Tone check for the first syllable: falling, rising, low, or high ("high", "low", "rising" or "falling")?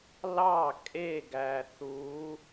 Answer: falling